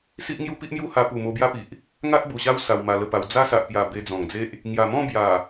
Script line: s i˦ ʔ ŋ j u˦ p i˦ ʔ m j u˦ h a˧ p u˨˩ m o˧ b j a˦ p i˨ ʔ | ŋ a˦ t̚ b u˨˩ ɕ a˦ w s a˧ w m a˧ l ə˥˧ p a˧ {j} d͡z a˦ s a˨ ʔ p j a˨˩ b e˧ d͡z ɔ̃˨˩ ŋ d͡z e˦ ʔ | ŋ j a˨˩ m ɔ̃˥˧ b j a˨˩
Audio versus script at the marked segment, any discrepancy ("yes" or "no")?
yes